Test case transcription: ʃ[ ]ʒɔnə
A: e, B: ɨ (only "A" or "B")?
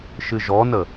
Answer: B